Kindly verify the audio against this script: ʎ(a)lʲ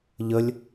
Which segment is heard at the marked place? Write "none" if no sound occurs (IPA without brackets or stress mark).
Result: ə